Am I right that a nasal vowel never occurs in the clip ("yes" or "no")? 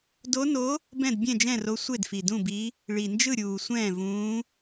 no